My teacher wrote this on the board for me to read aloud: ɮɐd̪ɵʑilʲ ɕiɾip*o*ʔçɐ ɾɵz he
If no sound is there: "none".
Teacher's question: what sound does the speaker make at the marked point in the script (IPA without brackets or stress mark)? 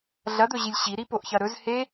o